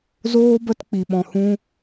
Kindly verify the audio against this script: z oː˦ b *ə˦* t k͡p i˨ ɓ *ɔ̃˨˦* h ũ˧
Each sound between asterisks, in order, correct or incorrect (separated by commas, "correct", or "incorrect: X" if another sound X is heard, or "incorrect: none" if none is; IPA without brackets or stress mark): correct, incorrect: ɔ̃˨